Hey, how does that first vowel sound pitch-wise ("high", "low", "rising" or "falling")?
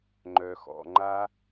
low